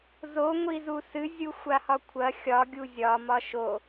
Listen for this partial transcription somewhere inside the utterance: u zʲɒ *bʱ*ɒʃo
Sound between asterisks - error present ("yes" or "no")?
yes